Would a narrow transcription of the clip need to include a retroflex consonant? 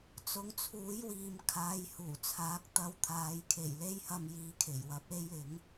no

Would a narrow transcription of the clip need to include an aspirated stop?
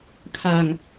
yes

